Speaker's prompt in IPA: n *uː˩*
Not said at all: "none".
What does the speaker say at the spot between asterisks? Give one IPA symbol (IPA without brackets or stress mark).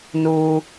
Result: uː˩